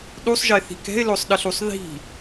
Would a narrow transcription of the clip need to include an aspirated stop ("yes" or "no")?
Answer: no